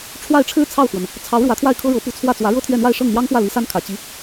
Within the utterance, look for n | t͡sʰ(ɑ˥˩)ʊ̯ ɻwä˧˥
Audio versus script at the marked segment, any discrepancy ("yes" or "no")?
yes